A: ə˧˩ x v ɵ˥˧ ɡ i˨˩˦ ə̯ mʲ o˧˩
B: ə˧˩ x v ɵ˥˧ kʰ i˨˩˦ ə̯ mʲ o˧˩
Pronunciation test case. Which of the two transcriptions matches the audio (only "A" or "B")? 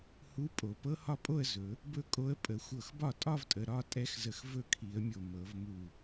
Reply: B